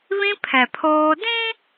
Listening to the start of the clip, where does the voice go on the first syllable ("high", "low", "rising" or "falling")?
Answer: high